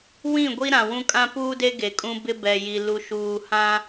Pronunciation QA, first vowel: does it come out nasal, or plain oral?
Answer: nasal